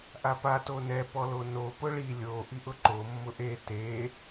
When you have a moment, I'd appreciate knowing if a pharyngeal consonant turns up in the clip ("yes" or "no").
no